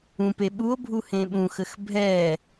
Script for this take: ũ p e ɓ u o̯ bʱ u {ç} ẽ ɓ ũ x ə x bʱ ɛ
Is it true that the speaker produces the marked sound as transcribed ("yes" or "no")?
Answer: no